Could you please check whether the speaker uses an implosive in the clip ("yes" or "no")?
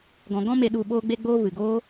yes